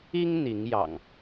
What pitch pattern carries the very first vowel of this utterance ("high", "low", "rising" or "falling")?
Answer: high